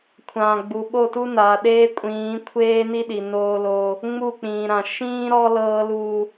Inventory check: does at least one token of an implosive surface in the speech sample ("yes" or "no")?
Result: yes